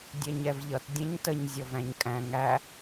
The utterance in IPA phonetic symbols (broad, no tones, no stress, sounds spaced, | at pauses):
dʲ ɛ ɲ ɛ v ʎ ʌ t dʲ ɛ̃ ɲ t ə ɲ zʲ ɔ v æ̃ ɲ kʼ æ̃ ŋ æ